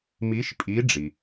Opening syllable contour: rising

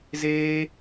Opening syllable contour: high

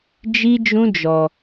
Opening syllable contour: high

